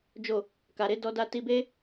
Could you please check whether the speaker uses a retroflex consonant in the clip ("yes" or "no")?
no